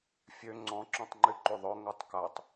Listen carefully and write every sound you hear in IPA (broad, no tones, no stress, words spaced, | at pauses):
fʲø ŋ͡ǀɔ̃ ǁɔ̃tˤŋ͡ǃyǃyðˤœ ŋœtˤkatˤ